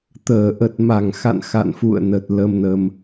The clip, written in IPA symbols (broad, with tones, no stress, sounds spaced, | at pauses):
t̪ əː˧˩ ʔ ə˨˩ t̚ m a˧˩ ŋ x a̰˧˨ n x a̰˧˨ n f ṵ˧˨ ə̯ n ə˨˩ t̚ l ə˧ m n ə˧ m